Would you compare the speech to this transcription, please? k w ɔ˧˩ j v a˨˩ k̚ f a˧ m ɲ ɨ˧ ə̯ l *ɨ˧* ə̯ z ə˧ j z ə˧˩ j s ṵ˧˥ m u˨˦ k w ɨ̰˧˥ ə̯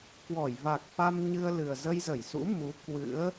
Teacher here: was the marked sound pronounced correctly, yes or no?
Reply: no